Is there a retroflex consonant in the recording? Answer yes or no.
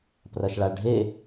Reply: yes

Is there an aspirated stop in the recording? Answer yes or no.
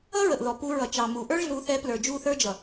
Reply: no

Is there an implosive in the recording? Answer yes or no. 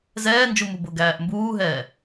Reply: no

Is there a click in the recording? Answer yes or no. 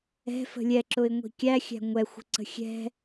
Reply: yes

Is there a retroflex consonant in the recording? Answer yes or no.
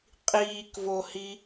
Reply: no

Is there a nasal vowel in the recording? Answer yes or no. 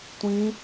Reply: yes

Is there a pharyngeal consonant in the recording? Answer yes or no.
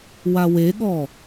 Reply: no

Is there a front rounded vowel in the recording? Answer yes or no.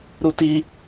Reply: no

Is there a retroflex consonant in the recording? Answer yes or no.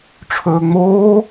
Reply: yes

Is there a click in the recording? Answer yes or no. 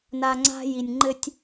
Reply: yes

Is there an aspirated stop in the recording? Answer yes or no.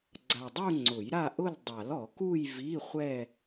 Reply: no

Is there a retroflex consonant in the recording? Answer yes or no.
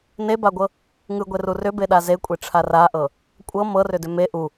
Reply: yes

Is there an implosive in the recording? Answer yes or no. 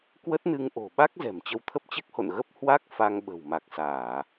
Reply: yes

